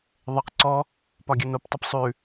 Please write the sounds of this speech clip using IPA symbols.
ðˤəq ǀɔ | pɒɡʲənoptˤəp sˤʉ

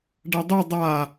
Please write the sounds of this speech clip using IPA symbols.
ɖɐdˤu dˤa

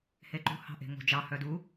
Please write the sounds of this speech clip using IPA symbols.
heǃṳ hɑ̤ʔe̤ŋo̤d͡ʒɑ hœdu

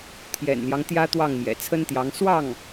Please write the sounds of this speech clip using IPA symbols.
t̪ʰjɛ̰˨˩nljɑ˦ŋ t̪jä˥t̪wɑ˥˩ŋ mjɛ̰˨˩t͡sʰə˥nt̪jɑ˧˥ŋ swɑ˥˩ŋ

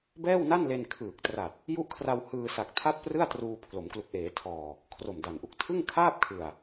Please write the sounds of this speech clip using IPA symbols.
bɛː˥˩wna˥˩nle˧n kʰɯː˨˩k̚tra˨˩t̚ | ju˦˥ʔkʰra˧w hɯː˧sa˨˩k̚ tʰa˥˩t̚prɯ˥˩a̯truː˧ pʰlo˩˦mklu˨˩k̚ʔeː˩˦ tʰɔː˨˩ | kʰro˨˩mda˨˩nʔu˨˩k̚ tʰɯ˥˩ŋ kʰaː˥˩p̚kʰɯ˨˩a̯

